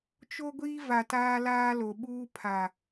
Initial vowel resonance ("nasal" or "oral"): oral